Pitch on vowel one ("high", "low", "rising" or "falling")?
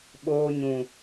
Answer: high